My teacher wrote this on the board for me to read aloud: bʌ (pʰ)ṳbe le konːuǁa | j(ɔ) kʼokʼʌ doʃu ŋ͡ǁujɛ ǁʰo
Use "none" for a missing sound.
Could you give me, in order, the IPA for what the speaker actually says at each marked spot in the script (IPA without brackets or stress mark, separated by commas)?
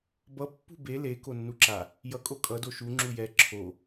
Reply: pː, ʌ